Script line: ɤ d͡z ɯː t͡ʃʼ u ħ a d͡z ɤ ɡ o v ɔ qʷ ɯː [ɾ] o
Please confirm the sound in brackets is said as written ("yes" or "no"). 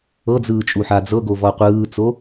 no